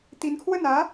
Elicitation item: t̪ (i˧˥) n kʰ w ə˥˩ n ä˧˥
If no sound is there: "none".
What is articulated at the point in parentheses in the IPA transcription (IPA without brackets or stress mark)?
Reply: i˧˥